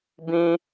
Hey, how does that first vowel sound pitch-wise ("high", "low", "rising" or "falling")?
high